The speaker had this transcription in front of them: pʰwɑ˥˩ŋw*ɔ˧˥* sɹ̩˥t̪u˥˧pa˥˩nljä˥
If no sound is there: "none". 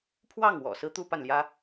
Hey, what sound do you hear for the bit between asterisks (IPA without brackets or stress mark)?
ɔ̰˨˩